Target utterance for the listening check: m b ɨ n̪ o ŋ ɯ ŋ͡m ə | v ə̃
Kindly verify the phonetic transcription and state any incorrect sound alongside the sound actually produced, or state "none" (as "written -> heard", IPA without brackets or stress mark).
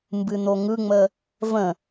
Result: none